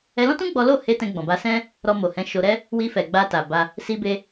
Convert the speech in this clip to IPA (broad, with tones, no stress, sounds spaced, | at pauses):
ɛ˧ l ɔ̃˦ t ũ˦ ɡ͡b ɔ˦ l o˦˨ h e˧ t ɛ̃˧ ɡ͡b ɔ̃˨ b a˧ s ɛ̃˦ | ɾ ɔ˧ m o˨ h ɛ̃˨˦ ʃ o˧ ɾ ɛ˦ | w i˧ f ɛ˨ ɡ͡b a˧ t a˨ b a˧ | s i˧ b e˧